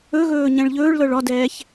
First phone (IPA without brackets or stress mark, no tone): ɵ